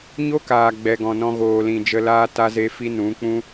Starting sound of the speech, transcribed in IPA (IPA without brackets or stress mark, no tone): ɲ